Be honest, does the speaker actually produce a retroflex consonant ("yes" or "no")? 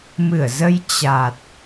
no